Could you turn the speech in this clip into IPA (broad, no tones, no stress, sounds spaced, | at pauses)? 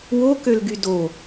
w o k ø l ɡ y d o